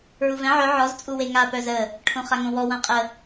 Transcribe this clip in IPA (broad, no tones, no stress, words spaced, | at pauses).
ɹuvɛ̃ ʕœ ʕɔz t͡sʼuweŋa pœzə | ʈʰõχaŋõwɔ wãqʼə